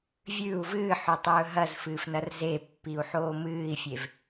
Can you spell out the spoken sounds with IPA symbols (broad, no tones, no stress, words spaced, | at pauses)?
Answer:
vʲʉu̯ vɨːħɵtˤɵː ɦɐzfɨːfnɐr zepːiu̯ħoː mɨːi̯fʲev